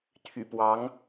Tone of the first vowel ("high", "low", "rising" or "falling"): low